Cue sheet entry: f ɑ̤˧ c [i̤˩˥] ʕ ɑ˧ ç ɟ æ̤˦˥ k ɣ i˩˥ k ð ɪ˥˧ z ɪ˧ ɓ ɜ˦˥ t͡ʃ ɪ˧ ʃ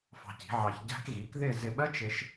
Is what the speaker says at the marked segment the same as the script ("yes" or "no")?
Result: yes